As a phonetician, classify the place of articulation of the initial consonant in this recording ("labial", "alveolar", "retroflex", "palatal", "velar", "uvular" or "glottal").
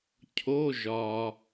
palatal